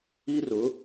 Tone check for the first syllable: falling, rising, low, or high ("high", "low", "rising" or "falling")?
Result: high